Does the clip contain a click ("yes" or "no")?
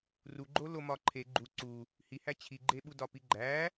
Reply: yes